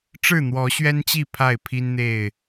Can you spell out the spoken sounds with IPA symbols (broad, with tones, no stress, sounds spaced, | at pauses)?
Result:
ʈ͡ʂ ɻ̩˥˨ n̪ w ɔ˨˦ ɕ ɥ ɛ˦ n t͡ɕ i˥˨ pʰ a˥˨ ɪ̯ pʰ i˦ n n̪ e˥˨ ɪ̯